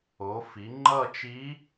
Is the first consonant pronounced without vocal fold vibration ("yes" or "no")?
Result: yes